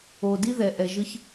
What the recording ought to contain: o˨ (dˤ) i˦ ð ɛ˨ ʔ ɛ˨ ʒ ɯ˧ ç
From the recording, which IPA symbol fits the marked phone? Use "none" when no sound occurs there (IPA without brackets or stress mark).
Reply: d